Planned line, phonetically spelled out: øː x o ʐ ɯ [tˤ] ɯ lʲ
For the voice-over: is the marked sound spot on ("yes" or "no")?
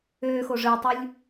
yes